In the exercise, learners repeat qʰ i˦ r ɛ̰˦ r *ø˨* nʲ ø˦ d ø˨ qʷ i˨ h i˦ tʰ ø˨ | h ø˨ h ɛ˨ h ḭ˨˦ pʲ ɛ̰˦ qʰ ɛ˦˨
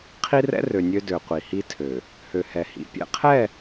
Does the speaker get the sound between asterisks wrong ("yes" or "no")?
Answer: no